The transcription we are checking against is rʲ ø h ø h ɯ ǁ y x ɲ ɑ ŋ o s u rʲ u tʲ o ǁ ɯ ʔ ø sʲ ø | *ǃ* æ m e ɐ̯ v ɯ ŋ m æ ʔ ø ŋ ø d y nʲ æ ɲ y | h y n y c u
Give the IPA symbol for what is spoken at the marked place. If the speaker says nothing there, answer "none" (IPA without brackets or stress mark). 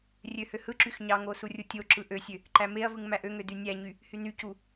ǃ